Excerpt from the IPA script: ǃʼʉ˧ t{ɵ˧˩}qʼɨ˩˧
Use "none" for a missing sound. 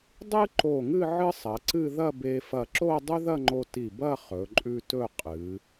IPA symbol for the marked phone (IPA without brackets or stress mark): ɵ˥˧